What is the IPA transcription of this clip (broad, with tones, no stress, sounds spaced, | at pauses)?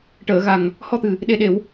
ʈ əː˨˩˨ ɣ a˨˩ ŋ | h ɔ˧ t̪ ɨ˨˩ | ɗ e˨˩ ɗ e˨˩˨ w